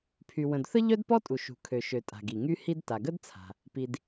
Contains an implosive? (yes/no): no